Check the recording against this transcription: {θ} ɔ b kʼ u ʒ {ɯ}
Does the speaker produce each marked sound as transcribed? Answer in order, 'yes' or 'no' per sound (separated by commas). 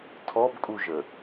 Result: no, no